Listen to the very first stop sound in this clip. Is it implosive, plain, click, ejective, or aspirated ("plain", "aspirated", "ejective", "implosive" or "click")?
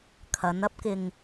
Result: aspirated